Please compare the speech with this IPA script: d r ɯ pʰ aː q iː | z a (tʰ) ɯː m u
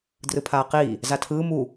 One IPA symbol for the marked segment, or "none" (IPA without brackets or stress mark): tʰ